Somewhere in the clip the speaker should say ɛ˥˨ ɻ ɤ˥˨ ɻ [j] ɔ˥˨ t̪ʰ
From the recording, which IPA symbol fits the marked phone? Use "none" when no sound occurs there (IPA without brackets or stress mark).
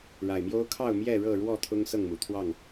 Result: w